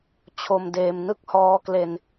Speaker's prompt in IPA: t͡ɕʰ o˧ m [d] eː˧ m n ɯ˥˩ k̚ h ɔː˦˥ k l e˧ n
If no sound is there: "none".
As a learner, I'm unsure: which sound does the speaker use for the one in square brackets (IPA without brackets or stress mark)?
d